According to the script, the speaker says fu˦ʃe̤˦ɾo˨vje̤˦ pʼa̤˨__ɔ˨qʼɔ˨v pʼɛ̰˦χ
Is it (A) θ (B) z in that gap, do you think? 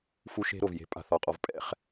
A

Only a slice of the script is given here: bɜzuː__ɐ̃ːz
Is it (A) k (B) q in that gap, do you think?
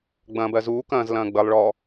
A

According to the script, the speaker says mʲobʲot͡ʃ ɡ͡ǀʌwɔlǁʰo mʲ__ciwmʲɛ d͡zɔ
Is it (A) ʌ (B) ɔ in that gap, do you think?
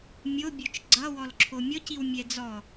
B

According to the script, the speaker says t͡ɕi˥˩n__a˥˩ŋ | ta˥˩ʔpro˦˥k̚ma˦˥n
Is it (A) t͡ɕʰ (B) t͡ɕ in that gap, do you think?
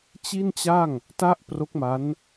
B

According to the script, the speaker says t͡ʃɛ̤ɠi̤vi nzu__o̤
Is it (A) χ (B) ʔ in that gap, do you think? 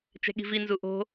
B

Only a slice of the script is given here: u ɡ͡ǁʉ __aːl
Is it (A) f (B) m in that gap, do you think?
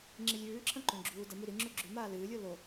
B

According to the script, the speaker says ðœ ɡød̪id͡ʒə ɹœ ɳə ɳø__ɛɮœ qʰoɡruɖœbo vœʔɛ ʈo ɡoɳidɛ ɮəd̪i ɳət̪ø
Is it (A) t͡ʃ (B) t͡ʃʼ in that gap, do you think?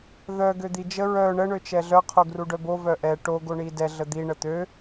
A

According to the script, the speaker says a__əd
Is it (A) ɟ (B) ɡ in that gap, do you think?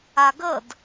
B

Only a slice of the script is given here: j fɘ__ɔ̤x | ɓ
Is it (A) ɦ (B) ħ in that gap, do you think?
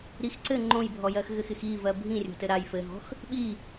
A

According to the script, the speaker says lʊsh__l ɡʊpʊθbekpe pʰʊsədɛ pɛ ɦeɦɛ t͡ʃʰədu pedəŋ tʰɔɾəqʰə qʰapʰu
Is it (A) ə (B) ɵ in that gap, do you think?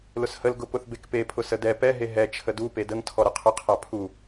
A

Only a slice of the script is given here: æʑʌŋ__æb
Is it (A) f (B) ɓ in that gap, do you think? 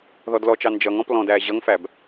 A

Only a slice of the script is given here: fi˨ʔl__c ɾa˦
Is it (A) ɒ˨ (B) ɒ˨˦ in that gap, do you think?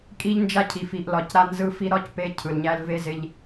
A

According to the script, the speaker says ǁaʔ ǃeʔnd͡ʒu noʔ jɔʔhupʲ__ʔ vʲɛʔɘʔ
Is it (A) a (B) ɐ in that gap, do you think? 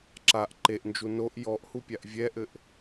A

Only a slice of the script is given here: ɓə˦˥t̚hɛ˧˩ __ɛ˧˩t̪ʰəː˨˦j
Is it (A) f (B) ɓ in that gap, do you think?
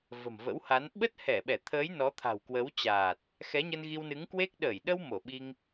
B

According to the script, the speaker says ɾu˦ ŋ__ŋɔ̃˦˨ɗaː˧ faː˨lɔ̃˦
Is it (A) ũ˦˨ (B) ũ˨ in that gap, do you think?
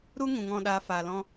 B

